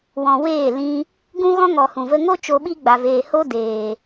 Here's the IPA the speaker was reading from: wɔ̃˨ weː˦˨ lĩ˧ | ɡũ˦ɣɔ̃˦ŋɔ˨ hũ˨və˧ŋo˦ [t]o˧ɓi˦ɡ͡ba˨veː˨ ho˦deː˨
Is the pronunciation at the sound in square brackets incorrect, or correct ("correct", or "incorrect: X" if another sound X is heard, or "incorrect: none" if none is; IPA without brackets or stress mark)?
incorrect: t͡ʃ